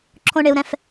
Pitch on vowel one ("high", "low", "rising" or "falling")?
high